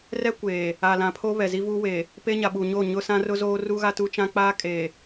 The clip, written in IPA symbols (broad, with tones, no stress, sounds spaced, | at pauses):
r ɛ˦ kʷ eː˨ | a˨ l ã˨ pʰ o˦ β ɛ˨ z i˦ v uː˦ w eː˨ | p e˦ ɲ a˨ ɓ u˨ ɲ oː˦˨ ɲ ʊ˦ s ã˦ r ʊ˦ z oː˦ r u˦ ɣ a˦ t u˦ t͡ʃ ã˦ k͡p aː˦ kʼ eː˨